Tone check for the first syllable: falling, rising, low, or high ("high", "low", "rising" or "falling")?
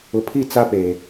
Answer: low